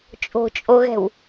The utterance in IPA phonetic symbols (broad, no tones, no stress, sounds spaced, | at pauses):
t͡ʃʼ o̤ t͡ʃʼ o ɣ ɛ̤ w